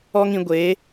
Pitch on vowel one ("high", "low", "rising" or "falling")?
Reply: high